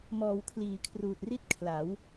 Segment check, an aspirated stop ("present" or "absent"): present